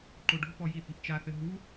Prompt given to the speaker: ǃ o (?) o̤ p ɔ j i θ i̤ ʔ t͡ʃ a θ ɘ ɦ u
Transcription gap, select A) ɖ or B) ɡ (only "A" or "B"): A